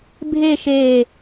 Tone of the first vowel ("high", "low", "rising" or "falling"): falling